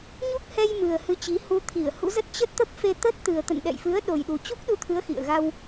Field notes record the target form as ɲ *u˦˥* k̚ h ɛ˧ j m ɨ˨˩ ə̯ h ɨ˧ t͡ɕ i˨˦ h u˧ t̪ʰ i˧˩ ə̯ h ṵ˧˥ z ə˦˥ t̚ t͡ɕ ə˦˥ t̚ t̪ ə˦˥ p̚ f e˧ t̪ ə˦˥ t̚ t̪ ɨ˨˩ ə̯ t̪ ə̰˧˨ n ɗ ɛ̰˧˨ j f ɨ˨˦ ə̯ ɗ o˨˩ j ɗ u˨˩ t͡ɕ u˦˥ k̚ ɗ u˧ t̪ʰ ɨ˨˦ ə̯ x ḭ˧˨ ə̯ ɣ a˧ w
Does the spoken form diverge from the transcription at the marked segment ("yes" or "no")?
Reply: no